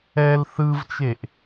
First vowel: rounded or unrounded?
unrounded